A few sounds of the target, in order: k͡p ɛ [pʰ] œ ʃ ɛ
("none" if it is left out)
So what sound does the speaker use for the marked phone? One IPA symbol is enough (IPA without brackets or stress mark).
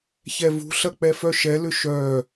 f